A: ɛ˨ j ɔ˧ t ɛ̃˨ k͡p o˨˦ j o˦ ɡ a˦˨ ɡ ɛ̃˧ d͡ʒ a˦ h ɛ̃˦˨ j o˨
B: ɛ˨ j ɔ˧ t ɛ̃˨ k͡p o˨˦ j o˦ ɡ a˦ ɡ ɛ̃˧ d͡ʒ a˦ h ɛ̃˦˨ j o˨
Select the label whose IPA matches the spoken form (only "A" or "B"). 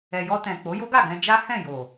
A